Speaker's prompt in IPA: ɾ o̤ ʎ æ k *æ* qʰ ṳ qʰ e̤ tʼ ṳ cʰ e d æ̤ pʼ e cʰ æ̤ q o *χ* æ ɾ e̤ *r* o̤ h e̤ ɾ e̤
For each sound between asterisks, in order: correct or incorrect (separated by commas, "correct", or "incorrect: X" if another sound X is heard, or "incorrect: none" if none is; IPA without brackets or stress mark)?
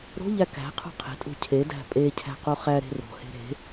incorrect: æ̤, correct, correct